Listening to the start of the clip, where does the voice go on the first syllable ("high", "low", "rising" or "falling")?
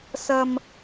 low